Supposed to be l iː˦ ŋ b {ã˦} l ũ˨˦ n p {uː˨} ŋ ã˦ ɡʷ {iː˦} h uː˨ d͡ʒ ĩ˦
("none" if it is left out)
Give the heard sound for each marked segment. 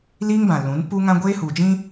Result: ã˨, uː˦, eː˦

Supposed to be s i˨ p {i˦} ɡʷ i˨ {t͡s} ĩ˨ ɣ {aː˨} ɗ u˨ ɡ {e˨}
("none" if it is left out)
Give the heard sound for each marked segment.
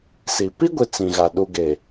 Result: i˦, t͡s, a˨, e˨

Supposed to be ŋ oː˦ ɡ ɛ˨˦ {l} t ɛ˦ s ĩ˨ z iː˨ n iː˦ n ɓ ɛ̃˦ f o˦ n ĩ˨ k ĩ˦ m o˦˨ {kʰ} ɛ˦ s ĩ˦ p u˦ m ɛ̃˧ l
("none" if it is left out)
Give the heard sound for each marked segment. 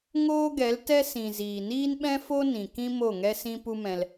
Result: l, ŋ

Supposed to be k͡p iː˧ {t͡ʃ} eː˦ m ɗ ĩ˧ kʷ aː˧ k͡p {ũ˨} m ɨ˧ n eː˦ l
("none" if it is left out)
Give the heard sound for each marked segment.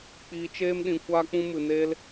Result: t͡ʃ, ũ˧

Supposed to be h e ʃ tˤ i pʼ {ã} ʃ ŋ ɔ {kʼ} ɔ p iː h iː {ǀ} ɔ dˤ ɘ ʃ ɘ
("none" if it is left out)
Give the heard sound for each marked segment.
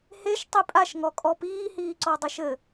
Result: a, kʼ, ǀ

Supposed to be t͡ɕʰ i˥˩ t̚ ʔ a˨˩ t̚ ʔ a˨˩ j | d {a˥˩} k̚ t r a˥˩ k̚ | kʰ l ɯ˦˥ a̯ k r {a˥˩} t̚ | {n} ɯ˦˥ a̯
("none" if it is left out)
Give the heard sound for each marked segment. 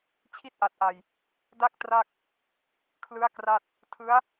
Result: a˥˩, a˥˩, tʰ

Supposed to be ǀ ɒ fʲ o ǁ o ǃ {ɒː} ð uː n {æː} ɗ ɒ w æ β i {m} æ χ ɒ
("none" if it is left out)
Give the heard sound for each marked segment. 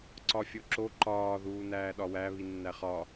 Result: ɒː, æː, nː

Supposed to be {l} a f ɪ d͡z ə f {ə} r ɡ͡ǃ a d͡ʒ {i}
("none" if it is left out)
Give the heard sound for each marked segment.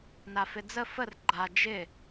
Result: n, ə, ɪ

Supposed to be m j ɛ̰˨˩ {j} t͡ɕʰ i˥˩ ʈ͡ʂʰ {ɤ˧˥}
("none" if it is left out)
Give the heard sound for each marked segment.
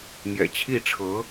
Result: none, ɤ˧˥

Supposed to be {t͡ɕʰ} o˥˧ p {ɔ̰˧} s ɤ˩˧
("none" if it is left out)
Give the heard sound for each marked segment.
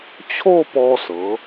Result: t͡ɕʰ, ɔ˧

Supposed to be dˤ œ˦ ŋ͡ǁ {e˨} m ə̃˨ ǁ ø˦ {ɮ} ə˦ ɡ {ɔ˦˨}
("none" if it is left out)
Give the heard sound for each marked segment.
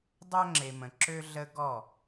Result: e˨, ɮ, ɔ˦˨

